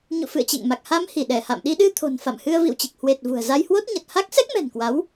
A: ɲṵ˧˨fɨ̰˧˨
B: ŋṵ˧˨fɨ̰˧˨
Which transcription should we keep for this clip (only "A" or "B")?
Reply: A